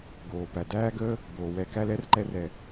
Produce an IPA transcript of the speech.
ɡ oː˨ p æ˨ d æː˦ ɡ əː˦ | b oː˨ w ɛ˧ k æ˦ l ɛ˦ r ǃ ɛ˧ r ɛ˨

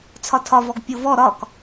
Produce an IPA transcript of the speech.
t͡sʰ ɒ tʰ ɒ v ɔ ɡ pʲ o v ɔ ɾ ɒ k

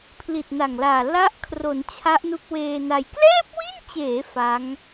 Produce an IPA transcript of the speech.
pʰ l i˨˩ t̚ n a˨˩ ŋ l aː˨˩ l a˦˥ ʔ kʰ r o˩˦ n t͡ɕʰ a˦˥ ʔ n u˦˥ k̚ w eː˧ n a˧ j k l ɛː˥˩ p̚ w i˥˩ n t͡ɕ eː˩˦ f a˦˥ ŋ

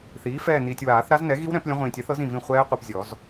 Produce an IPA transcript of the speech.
θ iː˩˥ f ɛː˦˨ n iː˨ tʲ w aː˨˩˦ θ ɾ a˦˥ z n ɛ˩˥ ɣ i˦˥ w ɾ ɛ̃˨˩˦ p lʲ ə̃˦˥ ʁʷ ĩː˨ tʲ ɛ˩˥ θ ɤ˩˥ z ĩ˦˨ v ĩ˦˨ χʷ ɛː˦˥ qʷ i˨ p zʲ ɔ˨˩˦ z

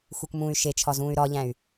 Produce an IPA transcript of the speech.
x u k m ũː y̯ ʃ e t͡ʃʰ ɒ z ũː y̯ ɾ ɒ ʎ æ̃ y̯

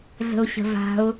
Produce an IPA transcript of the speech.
ɮ ə̤ ʊ̯ ɕ ə̤ v a̤ ʊ̯

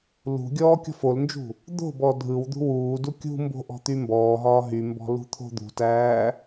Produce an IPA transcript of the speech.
l ṳ ɡʲ ɔː kʲ ɔ̤ f o l n d͡ʒ ṳ | d̪ o̤ b ɔ dʱ ɯ w d̪ ṳ w uː d u kʲ ṳ m b o̤ ʔ ɔ̤ t̪ y m b ɔː ɦ ɒː ɦ y m b ɔ̤ l ṳ t̪ʰ o̤ d̪ ṳ t æː

